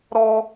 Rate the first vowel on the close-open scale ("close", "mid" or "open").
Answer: mid